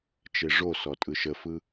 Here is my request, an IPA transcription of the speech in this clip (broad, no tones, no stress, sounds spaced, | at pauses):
t͡ʃ e ʐ o s ɔ tʼ ɯ ʃ ə f ɯ